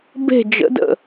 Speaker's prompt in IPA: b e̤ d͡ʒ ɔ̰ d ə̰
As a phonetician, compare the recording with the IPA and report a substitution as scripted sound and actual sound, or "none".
ɔ̰ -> ə̰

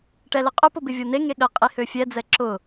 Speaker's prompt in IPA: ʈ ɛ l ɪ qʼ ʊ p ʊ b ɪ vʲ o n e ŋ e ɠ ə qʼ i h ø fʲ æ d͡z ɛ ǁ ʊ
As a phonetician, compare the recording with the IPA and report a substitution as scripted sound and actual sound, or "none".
æ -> ɛ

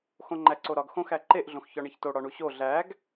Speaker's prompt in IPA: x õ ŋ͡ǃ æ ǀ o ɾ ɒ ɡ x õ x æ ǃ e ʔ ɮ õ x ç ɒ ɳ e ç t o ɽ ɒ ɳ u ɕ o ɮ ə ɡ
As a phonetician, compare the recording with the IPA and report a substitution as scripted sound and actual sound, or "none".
ə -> æ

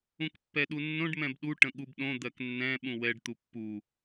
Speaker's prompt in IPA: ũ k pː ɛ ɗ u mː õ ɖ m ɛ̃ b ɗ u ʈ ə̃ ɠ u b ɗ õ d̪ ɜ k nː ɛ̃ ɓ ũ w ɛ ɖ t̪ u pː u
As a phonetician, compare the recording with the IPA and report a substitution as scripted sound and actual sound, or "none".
mː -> nː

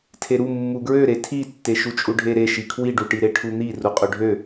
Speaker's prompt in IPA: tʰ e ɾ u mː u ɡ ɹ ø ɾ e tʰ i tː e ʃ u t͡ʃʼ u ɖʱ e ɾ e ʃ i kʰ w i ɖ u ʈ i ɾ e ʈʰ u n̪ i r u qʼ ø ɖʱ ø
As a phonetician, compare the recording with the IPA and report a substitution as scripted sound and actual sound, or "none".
none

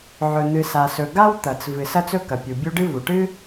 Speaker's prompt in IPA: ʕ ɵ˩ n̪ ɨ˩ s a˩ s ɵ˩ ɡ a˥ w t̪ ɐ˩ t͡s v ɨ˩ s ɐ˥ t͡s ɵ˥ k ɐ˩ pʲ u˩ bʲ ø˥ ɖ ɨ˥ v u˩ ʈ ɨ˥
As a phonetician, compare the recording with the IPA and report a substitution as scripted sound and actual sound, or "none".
ø˥ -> u˥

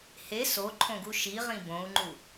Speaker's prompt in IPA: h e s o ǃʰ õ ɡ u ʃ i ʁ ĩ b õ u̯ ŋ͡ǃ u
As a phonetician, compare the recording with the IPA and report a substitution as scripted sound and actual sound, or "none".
none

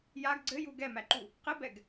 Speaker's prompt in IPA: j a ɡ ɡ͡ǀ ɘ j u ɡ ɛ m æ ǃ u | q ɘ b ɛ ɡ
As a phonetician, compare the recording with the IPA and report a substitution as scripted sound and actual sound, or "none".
none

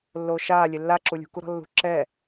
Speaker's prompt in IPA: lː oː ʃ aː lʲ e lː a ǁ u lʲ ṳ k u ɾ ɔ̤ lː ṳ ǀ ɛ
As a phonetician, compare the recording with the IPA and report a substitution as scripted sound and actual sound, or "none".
ǀ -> ǁ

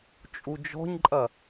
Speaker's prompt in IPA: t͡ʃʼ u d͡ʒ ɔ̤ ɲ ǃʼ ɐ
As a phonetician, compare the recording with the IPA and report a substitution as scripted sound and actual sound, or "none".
none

